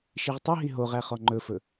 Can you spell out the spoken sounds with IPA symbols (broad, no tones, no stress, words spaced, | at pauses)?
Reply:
ʃiʁtˤɵɦi ɦoʁæ χɔŋ͡ǃɵfɵ